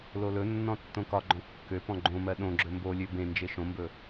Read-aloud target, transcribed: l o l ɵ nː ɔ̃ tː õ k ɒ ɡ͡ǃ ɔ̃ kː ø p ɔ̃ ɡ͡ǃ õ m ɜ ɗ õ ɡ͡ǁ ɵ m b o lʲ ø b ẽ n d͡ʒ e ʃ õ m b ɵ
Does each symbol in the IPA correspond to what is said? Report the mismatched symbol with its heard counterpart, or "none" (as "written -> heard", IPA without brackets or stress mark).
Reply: none